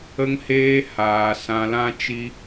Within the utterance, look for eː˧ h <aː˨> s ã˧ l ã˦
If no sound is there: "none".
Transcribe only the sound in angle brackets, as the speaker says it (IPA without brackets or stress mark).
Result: aː˨